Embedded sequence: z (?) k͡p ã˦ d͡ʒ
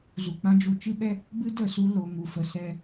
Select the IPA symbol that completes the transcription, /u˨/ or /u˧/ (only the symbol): u˧